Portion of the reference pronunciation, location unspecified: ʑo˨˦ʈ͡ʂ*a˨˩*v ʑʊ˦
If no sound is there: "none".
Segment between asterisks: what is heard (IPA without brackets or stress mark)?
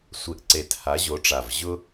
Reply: a˨˩